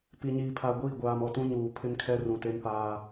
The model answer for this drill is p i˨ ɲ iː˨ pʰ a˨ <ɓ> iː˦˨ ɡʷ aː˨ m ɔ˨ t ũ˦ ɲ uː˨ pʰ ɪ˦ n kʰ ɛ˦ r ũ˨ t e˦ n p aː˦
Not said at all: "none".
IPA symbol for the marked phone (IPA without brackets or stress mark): ɡʷ